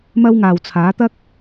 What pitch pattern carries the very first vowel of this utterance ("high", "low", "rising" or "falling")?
high